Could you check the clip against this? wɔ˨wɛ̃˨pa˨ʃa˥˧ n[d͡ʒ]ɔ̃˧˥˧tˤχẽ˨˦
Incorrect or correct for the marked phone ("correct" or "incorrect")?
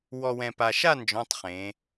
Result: correct